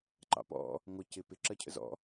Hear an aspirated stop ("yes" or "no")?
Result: yes